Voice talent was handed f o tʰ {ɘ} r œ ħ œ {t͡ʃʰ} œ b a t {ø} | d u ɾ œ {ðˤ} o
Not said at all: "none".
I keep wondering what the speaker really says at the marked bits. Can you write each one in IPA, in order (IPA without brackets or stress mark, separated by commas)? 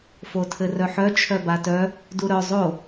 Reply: ɘ, t͡ʃʰ, œ, zˤ